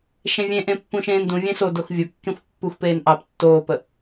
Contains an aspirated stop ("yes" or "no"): no